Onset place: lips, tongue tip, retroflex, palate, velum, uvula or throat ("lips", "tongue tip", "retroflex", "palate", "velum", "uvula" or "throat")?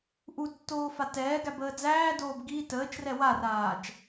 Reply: throat